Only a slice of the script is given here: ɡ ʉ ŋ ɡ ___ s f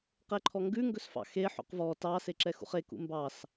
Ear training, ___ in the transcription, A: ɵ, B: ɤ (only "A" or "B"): A